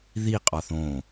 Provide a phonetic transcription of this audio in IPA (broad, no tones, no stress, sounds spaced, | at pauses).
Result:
ð i qʼ ɒ θ õ